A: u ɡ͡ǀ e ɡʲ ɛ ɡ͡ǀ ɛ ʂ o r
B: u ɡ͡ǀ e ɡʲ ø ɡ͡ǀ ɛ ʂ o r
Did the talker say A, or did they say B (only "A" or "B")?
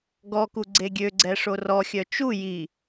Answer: B